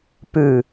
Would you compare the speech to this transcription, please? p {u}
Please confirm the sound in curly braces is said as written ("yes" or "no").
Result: no